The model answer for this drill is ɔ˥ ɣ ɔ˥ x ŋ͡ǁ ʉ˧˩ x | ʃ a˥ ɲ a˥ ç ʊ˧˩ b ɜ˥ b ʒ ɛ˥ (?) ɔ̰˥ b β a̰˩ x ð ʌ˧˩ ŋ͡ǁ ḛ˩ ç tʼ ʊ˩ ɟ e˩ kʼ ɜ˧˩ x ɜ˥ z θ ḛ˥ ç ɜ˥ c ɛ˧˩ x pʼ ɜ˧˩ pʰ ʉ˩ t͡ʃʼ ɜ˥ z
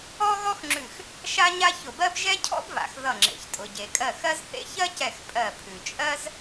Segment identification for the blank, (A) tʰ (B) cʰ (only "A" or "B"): B